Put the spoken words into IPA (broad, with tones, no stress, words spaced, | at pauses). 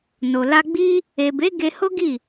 no˨la˧ ɡ͡bi˦ | e˨be˨˦ ɡe˧ho˦ɡi˦˨